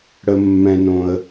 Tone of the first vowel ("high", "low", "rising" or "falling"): high